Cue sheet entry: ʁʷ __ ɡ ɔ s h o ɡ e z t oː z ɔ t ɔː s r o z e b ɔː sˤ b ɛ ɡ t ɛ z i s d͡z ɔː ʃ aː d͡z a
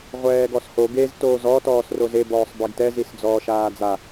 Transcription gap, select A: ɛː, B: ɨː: A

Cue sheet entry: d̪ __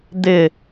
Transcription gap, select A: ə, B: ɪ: B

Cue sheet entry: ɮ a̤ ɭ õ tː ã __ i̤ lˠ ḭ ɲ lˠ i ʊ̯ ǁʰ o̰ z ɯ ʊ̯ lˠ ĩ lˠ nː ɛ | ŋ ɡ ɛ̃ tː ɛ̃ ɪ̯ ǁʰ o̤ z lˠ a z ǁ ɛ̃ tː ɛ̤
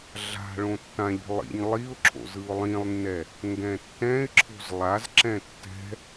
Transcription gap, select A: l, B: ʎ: B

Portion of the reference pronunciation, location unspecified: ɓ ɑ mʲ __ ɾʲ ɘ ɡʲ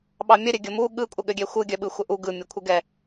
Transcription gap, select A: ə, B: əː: A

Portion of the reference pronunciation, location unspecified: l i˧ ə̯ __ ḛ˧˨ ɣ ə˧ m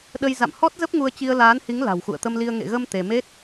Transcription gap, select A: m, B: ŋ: B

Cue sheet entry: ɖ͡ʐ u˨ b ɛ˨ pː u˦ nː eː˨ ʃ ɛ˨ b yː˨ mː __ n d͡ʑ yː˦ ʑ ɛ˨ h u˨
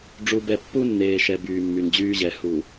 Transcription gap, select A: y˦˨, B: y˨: B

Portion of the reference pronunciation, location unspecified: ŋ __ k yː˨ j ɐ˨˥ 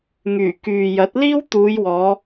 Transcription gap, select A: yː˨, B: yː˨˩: B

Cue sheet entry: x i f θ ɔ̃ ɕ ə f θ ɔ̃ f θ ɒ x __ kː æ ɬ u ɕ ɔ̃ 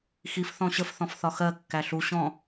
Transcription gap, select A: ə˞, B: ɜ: B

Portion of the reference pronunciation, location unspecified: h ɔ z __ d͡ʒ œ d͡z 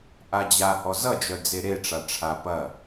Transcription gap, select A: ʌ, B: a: A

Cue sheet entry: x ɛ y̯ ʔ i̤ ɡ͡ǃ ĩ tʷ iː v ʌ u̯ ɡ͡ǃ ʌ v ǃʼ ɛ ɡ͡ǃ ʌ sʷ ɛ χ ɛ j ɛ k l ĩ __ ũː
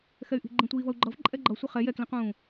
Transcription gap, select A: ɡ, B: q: B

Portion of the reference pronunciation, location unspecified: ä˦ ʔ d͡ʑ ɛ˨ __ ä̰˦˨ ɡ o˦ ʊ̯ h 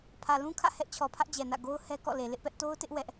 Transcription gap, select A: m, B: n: B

